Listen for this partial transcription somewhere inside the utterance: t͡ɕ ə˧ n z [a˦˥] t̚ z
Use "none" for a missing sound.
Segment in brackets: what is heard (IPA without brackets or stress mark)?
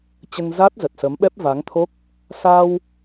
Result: a˦˥